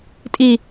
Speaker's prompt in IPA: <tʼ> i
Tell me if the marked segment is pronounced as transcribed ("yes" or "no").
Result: yes